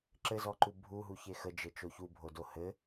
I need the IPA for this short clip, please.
ǁ ɘ z ɔ ǃ u bʱ u ɦ u ç e x ə d͡ʒ ɘ t͡ʃ o ç u bʱ o d o h ɘ

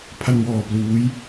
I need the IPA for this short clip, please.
pʰ a˧ n w ɔː˧ p l uː˦˥ j

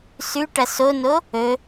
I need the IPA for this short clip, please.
s ʉ ʈ ɐ s o n o | ɵ

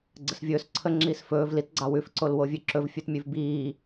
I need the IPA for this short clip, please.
ɡ͡ǀ ə s vʲ ɵː s ǀʰ ə ŋ͡ǁ iː s f ɵː v l i t ɡ͡ǀ ɑ w ʉ f ǀ o l w o vʲ ʉ ǁ ɵ v fʲ ʉ t mʲ ʉ v b iː

